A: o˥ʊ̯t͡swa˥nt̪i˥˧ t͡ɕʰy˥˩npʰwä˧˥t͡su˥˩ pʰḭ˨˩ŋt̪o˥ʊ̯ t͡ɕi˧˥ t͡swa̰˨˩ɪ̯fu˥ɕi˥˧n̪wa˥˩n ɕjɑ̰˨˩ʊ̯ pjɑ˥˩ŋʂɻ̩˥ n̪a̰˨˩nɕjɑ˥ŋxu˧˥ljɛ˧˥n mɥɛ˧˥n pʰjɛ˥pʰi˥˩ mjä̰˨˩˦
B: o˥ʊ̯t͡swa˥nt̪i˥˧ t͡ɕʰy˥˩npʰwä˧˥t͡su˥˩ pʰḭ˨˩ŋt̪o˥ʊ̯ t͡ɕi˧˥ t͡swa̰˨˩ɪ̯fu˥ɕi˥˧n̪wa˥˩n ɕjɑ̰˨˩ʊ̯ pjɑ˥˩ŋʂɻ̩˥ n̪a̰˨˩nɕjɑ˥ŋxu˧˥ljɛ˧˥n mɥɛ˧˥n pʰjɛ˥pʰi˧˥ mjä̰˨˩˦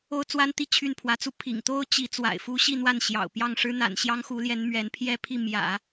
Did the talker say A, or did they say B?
A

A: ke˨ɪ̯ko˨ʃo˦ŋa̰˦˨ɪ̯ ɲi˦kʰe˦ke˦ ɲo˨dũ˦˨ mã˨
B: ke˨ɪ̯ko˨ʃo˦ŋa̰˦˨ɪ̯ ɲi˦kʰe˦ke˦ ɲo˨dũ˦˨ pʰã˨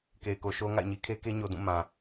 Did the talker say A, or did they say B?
A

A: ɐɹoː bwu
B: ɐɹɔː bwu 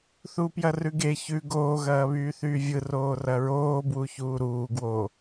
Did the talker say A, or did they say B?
A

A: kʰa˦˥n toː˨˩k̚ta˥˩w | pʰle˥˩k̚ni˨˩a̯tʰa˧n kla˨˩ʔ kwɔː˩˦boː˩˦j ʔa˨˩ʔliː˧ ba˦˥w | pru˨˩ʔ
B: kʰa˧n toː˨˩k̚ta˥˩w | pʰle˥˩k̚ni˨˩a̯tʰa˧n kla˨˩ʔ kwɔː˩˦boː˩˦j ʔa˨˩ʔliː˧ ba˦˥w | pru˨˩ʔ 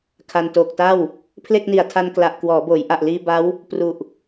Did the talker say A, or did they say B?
B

